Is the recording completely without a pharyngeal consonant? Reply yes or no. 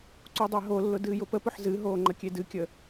no